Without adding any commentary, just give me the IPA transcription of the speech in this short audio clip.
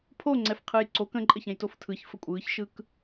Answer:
pʰoŋ͡ǀɛfqʰɯj ǀok ə̃ǃʼəçɛ̃j toftʰɯç fəkʷʼɯːçʃɯk

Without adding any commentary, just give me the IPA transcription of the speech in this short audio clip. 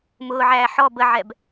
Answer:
mʊːʕæː ħɔ bəʕɛb

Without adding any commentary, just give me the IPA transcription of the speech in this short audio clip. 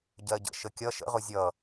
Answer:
ɟɜɟə̰ ʃəkʲʌ ʃə̰ʁʊ zʲʌ

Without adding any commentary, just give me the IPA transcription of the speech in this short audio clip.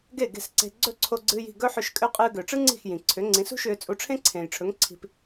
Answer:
ɡe˥˩ɡe̤˥˩sǀe̤˧ ɡ͡ǀɵ˥˩ǀʰo˧ɡ͡ǀɨː˧ji̤˥˩ ɡɵ˥ħʏ˧ʃkʼʏ˥˩ qʼɨː˧ɡʏː˩ʈ͡ʂɨ˥ ŋ͡ǀi̤˥˩xjĩ˩ ǀʰʏ˩˥ŋ͡ǀĩ˩˥sṳ˥ʃʏː˧ t͡sʼu˧ʈ͡ʂʰẽ˥ǀʰẽː˩jʈ͡ʂʰɵ˩˥ŋ ǀʰi̤˧p

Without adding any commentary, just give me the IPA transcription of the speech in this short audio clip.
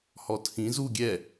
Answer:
hɔtʰĩ zu ɡʲɛ

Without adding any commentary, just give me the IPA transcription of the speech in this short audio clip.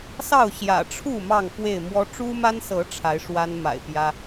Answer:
sɑ˥˨ʊ̯ɕjä̰˨˩ʈ͡ʂʰu˥˨ mɑ˥˨ŋfwe˥˨ɪ̯ mwɔ˦ ʈ͡ʂu˦ma˦nsɤ˨˦ ʈ͡ʂʰa˨˦ɪ̯ʂwa˦nma̰˨˩ɪ̯ pjä˦

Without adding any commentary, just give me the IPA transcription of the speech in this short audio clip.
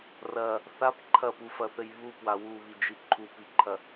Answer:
rɐ | θap ǃʰɐpufɐθɘj βupwa wuβid͡ʒi ǃʰupiǃʰɐ

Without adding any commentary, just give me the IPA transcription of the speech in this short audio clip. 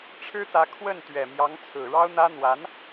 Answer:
ʈ͡ʂʰɻ̩˥t̪ä˧˥ kʰwə˥˩nt̪ɥɛ˨˩ mjɑ˧˥ŋt͡sʰɹ̩˨˩ɻɑ˥ʊ̯n̪ä˥ n̪wa˧˥n

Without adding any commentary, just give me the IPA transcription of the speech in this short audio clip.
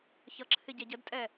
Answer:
çʌǁʰɪ ɟɛɟədtʼɛ

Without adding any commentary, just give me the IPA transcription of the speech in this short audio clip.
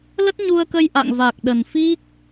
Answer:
lə˦˥t̚ɲu˧ə̯kə˧j ʔa̰˧˨ŋ va˨˩k̚ ɗə˨˩n fi˦˥k̚

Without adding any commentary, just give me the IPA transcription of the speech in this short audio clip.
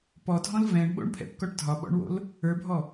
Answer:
pɔdʱɔ̃l vɛ̃ɳɓo̰ɳpʰɛ̰pkɔʈ dʱɒɓɔ̰ɳwo̰l | ə˞bʱɔ

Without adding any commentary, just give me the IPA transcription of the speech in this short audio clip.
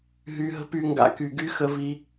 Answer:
ɦy˧ɦə̤˦py˧ŋɡa̰˧ ky˨ɡy˦ xə˧vi˧

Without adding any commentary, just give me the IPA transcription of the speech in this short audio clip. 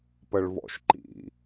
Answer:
pəɭvɔ̰ʃǃḭ

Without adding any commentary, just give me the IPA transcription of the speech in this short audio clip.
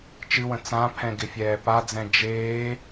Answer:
t͡ʃɨwə̃ t͡sãpʰɛ̃ ɡɪfʲɛːpad͡zɛ̃ d͡ʒeː

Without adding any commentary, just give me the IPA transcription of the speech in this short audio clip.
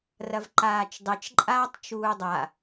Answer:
rɐvǃaːt͡ʃdˤet͡ʃ ǃʼaːtˤt͡ʃuːdˤa

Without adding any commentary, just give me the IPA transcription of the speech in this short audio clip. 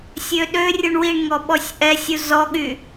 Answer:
sʲøɗørʲuɳ wiɳŋɔ ɓɔsʲʔɛsʲu zɔɠy

